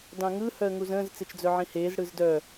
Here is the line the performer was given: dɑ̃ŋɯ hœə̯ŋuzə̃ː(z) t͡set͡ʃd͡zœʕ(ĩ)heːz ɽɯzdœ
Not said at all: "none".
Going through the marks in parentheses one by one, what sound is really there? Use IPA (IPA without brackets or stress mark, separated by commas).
z, ĩ